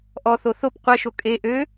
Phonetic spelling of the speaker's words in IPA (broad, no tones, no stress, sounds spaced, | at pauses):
ʔ ɔ θ o θ o p qʷ ɛ ʃ o kʼ e ʔ ø